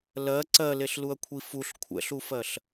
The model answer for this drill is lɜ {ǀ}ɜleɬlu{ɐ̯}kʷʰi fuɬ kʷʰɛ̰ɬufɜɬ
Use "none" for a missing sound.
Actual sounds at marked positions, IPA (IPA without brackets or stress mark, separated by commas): ǀ, ɐ̯